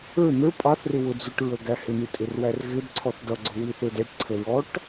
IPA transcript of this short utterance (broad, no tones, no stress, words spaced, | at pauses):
ə˞ n̪ə˞ pʼɑθrɪ wʊd͡zuʈɹəɡæ hɪn̪itʼɪrwær ɣɪdǀʰɔθ dʌɡ͡ǀʊwiθə˞d ɛʈǀʰəɹɔʈ